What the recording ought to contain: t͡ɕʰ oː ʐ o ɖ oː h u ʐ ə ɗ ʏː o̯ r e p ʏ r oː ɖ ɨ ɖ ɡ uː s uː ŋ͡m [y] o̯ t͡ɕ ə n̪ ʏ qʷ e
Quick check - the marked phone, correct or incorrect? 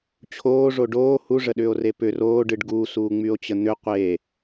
correct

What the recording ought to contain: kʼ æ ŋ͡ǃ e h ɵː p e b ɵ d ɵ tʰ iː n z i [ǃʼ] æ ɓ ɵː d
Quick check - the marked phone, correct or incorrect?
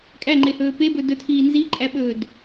correct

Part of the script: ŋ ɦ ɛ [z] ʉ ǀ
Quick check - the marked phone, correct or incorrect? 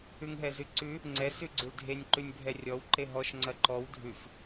correct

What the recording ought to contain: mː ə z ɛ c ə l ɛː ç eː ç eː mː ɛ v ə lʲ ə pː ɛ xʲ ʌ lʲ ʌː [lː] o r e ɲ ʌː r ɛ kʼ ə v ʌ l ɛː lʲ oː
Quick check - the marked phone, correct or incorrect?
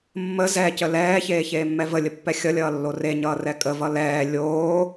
correct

